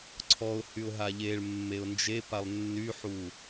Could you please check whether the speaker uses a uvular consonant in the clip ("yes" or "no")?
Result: no